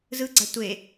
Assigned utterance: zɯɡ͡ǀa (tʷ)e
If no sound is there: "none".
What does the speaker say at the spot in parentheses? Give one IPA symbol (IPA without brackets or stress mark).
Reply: tʷ